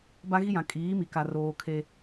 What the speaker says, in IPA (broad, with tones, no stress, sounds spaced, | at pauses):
b a˦ ɣ i˦ j ã˨ kʼ iː˨˦ m i˨ k a˨ r oː˨ kʰ e˦